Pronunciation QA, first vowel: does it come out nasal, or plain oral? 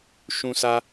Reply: nasal